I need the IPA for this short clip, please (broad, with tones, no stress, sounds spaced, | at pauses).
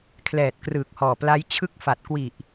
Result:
kʰ l ɛː˨˩ t̚ k r ɯː˨˩ k̚ h ɔː˨˩ p l a˦˥ j t͡ɕʰ ɯ˦˥ k̚ f a˨˩ t̚ k w i˨˩ ʔ